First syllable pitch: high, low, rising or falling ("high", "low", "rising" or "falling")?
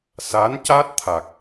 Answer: rising